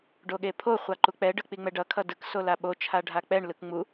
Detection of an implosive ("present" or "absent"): present